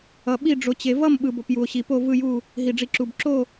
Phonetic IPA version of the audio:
ʌ˧ ɓ i˥˧ ɖ͡ʐ o˧ t͡ɕ e˧ v ʌ˥˧ m ɓ ɯ˧ b o˧ p j u˧ o̯ ɕ i˧ p o˥˧ v ɯ˥˧ j u˥˧ | ɦ i˧ ɖ͡ʐ i˧ ǁ u˧ b ǁ o˥˧

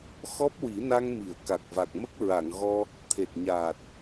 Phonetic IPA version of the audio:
x ɔ˦˥ p̚ w i˨˩˦ n a˧ ŋ m i˨˩˨ ə̯ k a˨˩ k̚ v a˨˩ k̚ m ə˦˥ k̚ ɹ a˨˩˨ ŋ ɣ ɔ˧ | t̪ʰ e˨˩ t̚ ɲ aː˨˩ t̚

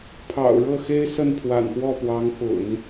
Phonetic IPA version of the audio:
pʰ ɑ̰˨˩ ʊ̯ ɻ ɤ˥˩ x e˥ ɪ̯ s ə˥˩ n pʰ w a̰˨˩ n p w ɔ˥˩ p w ɑ˧˥ ŋ p ʊ̰˨˩˦ ŋ

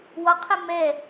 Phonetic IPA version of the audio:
w ɒ qʰ ɛ m ɛ

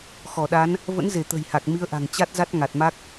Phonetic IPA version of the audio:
x ɔ˧˩ ɗ a˨˦ n | v ə̰˧˥ n z e˧˩ t̪ ə̤˨˩ j h a˨˩ k̚ m i˨˦ ə̯ ʔ a̤˨˩ ŋ t͡ɕ a˦˥ t̚ z a˦˥ t̚ ŋ a˨˩ t̚ m a˦˥ k̚

